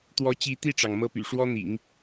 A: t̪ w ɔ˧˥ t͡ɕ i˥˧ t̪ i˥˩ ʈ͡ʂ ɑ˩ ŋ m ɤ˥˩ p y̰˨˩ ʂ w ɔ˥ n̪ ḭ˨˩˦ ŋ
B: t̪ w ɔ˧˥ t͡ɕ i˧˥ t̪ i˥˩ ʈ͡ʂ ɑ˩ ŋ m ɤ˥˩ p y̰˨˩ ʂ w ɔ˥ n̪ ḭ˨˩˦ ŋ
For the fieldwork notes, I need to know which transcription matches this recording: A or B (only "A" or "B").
B